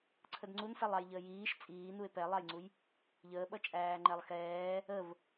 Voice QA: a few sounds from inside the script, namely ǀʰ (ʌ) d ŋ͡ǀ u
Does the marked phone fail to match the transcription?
yes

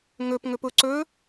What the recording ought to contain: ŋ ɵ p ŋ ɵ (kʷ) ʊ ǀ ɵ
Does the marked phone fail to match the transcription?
yes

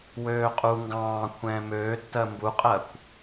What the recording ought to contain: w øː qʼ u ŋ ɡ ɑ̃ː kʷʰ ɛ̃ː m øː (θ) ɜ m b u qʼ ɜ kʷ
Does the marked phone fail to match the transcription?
yes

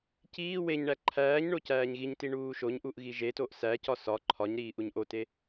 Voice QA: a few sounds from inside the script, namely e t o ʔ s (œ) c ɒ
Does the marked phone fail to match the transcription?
yes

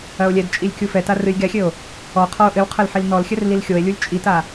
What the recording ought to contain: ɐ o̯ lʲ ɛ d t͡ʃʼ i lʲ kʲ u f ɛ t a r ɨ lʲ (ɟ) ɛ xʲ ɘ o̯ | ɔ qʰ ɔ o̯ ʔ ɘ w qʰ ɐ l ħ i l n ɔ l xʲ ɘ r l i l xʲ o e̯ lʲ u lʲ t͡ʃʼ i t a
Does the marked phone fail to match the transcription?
yes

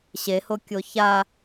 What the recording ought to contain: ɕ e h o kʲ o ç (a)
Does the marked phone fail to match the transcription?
no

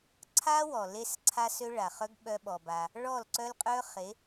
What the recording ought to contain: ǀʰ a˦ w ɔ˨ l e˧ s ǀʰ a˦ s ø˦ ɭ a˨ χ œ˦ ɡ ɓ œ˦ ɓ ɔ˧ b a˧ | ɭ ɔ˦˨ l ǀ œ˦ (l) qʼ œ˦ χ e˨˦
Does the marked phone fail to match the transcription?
no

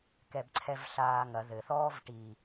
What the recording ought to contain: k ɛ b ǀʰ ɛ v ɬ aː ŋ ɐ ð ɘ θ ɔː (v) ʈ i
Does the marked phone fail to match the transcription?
no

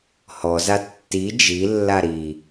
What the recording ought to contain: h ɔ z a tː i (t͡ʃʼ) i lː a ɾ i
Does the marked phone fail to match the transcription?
yes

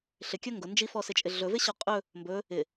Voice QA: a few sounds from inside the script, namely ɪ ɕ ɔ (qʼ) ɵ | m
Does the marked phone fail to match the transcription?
no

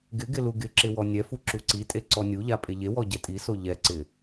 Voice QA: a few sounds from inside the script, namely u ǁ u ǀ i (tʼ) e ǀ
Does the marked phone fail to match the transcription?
no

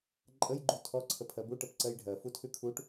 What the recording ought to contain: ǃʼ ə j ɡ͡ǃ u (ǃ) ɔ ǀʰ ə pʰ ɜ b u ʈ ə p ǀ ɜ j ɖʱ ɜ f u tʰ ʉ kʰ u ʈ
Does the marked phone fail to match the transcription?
yes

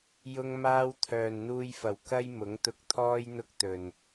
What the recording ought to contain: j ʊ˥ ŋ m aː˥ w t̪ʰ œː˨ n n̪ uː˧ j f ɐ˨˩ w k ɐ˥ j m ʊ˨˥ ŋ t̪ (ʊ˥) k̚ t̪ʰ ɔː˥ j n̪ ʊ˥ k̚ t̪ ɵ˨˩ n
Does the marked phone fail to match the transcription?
yes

